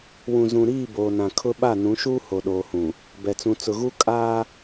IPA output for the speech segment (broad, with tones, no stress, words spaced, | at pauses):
wũ˨zũ˨ɾiː˦˨ boː˨nã˨kʰʊ˦ ɓa˦˨ nũ˨˦ʃuː˦ho˨ ɗoː˨hũ˨ | bɛ˨t͡sũ˨ t͡sʊ˨ɣu˦ kʼaː˦